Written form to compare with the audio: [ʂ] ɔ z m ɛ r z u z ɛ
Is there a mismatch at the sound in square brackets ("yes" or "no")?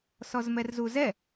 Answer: yes